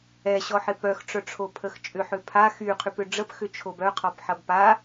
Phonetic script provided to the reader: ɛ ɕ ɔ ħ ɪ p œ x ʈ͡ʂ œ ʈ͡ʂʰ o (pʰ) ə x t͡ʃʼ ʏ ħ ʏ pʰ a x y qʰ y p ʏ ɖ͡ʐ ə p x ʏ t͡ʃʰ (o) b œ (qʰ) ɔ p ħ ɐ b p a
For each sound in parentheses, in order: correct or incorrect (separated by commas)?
correct, correct, correct